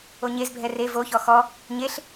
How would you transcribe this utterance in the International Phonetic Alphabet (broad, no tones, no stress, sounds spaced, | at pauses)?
o ɲ e z bʱ ɛ r e v o ç ɔ x ɔ | ɲ e ɬ